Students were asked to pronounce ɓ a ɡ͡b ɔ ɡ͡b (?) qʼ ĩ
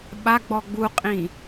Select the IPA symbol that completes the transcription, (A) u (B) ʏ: A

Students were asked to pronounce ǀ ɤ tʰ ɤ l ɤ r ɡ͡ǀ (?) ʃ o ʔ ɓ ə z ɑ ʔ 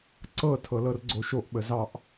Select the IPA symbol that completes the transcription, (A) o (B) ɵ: A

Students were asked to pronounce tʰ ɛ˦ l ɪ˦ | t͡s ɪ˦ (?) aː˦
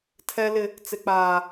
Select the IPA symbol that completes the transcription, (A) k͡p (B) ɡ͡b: A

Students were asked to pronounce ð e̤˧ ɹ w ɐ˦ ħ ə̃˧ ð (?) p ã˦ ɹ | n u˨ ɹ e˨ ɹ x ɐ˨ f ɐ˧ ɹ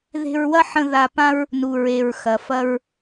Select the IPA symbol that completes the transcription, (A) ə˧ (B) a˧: B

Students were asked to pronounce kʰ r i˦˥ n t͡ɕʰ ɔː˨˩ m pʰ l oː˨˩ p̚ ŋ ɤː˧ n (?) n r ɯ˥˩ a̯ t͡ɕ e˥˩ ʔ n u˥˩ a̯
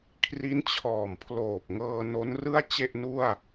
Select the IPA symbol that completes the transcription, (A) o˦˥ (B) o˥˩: A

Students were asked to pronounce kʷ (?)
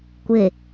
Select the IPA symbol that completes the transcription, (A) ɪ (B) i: A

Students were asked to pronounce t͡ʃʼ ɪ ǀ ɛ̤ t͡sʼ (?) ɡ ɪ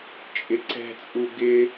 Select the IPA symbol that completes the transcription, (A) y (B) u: B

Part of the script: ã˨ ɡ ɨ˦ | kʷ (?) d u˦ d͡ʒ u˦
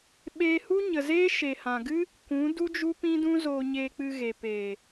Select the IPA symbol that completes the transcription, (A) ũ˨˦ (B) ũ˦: A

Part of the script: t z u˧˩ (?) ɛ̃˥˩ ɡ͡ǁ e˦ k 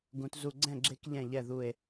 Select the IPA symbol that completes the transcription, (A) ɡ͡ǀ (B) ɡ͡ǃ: A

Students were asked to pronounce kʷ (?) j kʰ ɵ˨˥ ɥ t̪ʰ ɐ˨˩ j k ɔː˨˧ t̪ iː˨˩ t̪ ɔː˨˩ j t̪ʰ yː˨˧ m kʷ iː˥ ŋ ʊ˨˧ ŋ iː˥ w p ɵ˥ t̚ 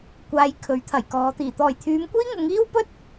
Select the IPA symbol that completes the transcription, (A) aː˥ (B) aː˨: B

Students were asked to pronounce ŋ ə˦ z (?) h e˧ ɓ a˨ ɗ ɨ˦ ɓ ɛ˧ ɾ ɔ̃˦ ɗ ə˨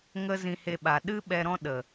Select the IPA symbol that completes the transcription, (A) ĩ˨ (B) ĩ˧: B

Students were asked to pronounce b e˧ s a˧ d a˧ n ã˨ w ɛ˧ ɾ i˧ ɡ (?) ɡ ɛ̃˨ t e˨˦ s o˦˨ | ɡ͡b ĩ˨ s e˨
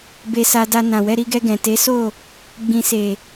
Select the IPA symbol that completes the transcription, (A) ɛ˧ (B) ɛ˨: A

